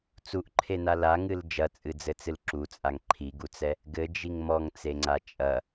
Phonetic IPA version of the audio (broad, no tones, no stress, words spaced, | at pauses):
t͡suʔǃʰena laŋɨl d͡ʒɐt͡sʼɨd͡zɘt͡sɨl ǁut͡sʼaŋ ǃʰiɡut͡sɛ | ɡɘd͡ʒiŋ mɔŋt͡seŋ͡ǀa t͡ʃʼɐ